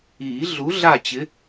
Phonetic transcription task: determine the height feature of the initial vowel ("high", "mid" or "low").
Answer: high